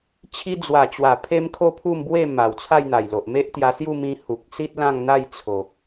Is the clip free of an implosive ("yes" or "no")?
yes